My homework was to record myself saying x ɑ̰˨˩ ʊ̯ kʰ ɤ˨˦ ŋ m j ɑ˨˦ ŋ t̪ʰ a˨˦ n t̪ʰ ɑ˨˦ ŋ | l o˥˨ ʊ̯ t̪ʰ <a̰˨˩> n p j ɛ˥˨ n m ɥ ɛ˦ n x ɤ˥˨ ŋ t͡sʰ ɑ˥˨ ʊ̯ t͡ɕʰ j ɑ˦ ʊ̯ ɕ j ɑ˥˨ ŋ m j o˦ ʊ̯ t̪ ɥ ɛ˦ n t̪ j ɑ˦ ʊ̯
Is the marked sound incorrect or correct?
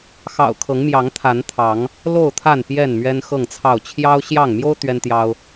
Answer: incorrect